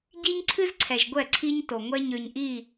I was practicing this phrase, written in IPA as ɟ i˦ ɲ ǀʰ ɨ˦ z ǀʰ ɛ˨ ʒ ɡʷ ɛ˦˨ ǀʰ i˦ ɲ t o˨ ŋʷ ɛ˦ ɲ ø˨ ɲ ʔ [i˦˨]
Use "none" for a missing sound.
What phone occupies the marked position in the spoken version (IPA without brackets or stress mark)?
i˦˨